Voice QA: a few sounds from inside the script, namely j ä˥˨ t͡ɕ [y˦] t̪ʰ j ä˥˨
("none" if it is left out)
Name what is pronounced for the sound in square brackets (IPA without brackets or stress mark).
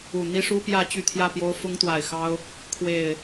y˥˨